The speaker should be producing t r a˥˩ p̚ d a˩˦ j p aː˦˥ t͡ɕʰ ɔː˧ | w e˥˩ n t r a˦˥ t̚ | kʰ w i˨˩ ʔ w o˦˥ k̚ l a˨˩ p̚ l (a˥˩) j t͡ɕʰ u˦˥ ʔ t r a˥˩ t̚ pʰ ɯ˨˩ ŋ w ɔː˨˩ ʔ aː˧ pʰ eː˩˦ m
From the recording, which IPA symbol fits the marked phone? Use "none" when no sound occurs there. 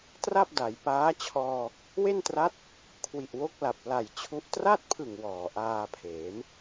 a˨˩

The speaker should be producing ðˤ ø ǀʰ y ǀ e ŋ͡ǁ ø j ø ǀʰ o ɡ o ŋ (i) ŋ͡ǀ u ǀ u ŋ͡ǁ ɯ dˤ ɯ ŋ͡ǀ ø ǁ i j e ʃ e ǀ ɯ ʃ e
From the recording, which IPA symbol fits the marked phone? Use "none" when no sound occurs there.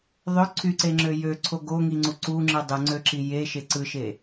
i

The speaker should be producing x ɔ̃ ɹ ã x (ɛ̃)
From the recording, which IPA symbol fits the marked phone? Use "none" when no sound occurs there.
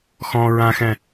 ɛ̃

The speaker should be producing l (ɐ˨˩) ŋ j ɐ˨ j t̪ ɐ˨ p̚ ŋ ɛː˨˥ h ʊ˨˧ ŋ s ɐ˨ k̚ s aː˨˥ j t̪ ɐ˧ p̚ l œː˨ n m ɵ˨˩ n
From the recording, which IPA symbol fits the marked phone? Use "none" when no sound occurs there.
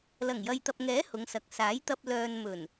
ɐ˨˩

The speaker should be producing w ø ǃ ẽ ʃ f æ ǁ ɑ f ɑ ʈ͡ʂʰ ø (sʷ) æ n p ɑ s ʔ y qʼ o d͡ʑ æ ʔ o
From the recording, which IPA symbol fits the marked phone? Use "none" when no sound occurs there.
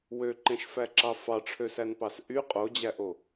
s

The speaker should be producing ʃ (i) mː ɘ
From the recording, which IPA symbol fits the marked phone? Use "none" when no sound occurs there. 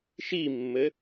i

